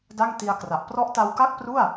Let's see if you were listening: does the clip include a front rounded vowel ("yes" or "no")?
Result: no